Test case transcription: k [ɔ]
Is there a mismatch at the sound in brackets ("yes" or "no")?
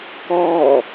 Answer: no